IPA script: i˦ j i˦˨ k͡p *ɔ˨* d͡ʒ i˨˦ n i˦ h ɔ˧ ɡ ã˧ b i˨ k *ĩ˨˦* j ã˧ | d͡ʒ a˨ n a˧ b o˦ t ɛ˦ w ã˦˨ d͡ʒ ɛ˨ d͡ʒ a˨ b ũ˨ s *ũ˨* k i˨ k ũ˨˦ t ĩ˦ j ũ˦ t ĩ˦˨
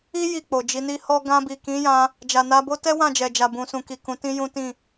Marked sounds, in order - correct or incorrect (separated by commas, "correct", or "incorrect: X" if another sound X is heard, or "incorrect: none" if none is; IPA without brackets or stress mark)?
incorrect: o˨, correct, correct